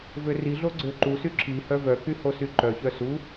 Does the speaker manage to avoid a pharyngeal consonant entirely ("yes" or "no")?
yes